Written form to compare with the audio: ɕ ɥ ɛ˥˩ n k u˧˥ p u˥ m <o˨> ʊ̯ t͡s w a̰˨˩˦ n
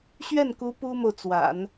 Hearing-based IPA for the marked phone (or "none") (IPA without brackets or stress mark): o˨